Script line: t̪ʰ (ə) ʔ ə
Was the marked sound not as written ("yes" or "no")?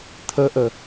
no